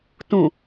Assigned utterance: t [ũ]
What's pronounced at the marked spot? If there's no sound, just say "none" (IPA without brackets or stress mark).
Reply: ũ